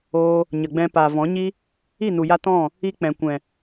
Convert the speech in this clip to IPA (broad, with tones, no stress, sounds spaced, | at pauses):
oː˧ | ɲ ə˨ ɡ͡b ɛ̃˧ p aː˨ v ɔ̃˨˦ ɲ i˦ | i˦˨ n u˨ j a˧ t ɔ̃˦˨ | i˧ k͡p ɛ̃˨ kʷ ɛ̃˨